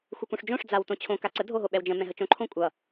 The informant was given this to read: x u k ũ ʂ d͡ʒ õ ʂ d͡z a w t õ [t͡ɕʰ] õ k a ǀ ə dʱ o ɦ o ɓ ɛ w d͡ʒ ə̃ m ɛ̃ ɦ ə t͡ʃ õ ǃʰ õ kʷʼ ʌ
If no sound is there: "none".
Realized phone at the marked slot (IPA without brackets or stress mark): t͡ɕʰ